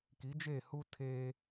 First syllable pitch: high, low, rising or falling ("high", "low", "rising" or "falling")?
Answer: rising